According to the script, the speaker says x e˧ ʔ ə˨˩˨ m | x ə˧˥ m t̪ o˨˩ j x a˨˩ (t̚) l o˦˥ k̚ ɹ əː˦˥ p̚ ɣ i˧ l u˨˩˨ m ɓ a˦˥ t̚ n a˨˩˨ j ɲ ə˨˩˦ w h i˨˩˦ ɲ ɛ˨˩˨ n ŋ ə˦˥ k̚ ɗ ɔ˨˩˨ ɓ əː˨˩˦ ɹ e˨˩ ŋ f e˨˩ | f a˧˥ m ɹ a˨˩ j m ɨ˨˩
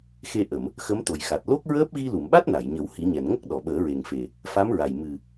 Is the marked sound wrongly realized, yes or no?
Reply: no